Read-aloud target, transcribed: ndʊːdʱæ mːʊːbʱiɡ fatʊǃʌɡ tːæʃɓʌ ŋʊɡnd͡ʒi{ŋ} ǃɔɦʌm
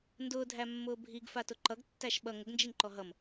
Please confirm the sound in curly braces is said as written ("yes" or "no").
yes